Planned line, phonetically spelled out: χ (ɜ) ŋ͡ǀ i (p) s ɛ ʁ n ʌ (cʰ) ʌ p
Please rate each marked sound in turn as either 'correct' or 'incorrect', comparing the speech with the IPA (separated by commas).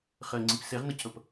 correct, correct, correct